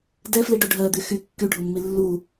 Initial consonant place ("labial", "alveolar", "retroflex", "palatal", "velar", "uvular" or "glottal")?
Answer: alveolar